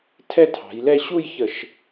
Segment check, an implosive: absent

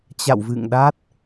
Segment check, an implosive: present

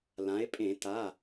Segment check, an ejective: present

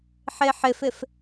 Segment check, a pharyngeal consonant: present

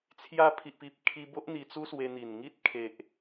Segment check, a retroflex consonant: absent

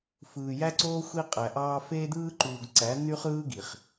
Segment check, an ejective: present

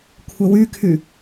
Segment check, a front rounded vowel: present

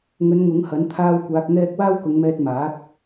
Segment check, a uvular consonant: absent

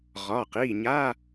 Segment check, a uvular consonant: present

